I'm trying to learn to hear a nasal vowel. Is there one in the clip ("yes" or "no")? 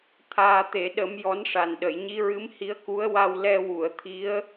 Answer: no